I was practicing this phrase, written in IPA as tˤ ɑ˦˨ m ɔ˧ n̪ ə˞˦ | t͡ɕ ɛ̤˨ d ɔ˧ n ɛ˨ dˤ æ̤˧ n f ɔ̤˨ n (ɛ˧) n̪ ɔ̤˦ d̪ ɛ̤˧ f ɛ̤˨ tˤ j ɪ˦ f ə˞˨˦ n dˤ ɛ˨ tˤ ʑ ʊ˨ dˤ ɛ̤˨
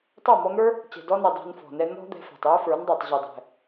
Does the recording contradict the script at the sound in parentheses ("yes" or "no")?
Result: no